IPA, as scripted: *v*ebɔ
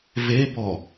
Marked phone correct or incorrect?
correct